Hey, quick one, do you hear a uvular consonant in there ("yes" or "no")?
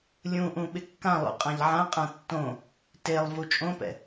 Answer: yes